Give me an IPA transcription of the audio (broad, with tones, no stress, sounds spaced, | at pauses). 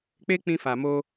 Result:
k͡p e˦ k͡p ĩ˧ f a˨ m o˧